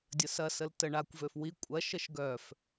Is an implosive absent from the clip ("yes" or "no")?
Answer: yes